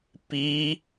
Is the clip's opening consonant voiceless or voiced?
voiceless